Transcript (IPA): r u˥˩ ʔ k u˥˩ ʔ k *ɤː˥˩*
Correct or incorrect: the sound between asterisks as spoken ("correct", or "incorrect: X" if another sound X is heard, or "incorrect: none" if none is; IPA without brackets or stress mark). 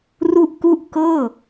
correct